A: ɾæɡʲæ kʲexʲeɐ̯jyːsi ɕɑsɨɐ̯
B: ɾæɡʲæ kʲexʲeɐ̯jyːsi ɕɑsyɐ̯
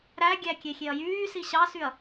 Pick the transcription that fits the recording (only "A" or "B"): B